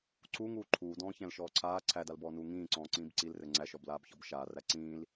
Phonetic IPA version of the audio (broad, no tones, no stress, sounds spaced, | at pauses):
ǀ u ŋ uː ǃʰ uː d ɔ̃ː ç æ̃ l ʃ ɔː ǀʰ aː ǀʰ æ d a l b ɔː n uː ŋ ĩː ǀ ɔ̃ː ǀ ĩː b ǀ i l r ɘ ŋ͡ǀ æ ʃ ɔ b l aː b ç ɔ b ʃ aː r æ ǀ ĩː l